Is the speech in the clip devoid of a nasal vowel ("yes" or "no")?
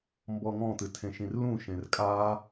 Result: no